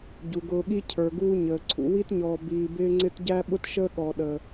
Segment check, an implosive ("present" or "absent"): present